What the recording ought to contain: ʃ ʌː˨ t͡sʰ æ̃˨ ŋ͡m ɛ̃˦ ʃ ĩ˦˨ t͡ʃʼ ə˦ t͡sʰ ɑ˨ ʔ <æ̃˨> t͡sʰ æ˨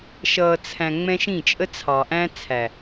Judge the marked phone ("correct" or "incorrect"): incorrect